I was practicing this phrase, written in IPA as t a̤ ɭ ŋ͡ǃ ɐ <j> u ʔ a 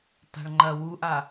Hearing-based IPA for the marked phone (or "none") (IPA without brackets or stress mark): w